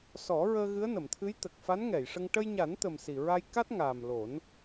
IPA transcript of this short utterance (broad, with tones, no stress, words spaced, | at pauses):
sɔ˨˩˦ɹəː˧ ɣɨ˧˥ə̯nə˨˩˨mt̪ʰɨ˧˥j t̪ə˨˩k̚fa˧˥nŋɛ˨˩˨jʂə˧ŋ ʈə˧jɲa˨˩˦nt̪ə˨˩m si˨˩ɹa˧j ka˦˥t̚ŋaː˨˩m lo˨˩˦n